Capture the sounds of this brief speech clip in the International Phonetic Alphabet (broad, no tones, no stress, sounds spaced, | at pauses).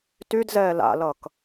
t y d z ɛː l a̰ l ʌː k